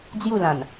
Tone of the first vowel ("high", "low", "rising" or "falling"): falling